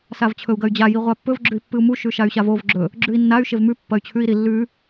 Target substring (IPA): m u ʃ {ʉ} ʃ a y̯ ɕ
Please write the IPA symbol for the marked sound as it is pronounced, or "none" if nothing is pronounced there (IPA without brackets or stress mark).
ʉ